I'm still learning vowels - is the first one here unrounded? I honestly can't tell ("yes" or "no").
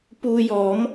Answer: no